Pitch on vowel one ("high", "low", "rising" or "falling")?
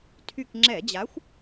falling